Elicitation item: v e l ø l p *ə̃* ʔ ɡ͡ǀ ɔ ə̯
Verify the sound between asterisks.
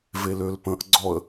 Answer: correct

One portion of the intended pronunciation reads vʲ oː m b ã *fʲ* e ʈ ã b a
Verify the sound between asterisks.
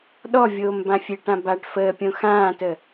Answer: correct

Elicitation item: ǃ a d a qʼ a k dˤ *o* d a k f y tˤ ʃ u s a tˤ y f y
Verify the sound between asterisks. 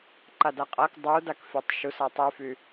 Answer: incorrect: u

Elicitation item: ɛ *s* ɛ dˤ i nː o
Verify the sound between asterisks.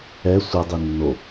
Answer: incorrect: sʷ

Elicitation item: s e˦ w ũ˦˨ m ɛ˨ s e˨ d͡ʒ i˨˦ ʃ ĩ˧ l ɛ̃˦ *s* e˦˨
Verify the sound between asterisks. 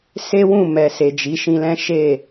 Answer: incorrect: ʃ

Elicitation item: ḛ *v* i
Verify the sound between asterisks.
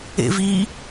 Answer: correct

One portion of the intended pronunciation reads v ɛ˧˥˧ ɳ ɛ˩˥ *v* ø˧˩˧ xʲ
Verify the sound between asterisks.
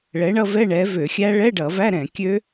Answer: correct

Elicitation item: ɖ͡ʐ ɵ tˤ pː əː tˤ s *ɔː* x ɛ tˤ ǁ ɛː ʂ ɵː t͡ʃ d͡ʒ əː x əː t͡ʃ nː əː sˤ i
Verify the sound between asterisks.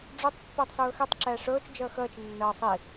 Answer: incorrect: ɵː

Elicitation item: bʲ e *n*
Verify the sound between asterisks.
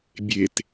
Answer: incorrect: t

